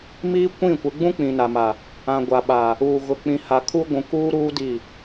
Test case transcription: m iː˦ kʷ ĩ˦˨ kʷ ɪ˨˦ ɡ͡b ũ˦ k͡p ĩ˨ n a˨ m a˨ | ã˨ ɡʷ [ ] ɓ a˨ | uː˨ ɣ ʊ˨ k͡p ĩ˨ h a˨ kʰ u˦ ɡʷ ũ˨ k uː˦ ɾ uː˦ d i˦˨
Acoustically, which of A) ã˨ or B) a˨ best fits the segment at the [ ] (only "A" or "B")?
B